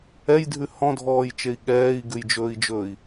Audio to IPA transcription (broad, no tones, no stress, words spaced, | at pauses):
ɛjdʱʉ hɔ̃dʱɔːjt͡ʃei̯ ɠɛːi̯ɡʉjd͡ʒɵːi̯d͡ʒɵːi̯